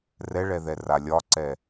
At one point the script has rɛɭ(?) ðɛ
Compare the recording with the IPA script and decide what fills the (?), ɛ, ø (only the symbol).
ɛ